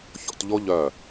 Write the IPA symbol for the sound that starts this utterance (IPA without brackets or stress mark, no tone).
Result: ç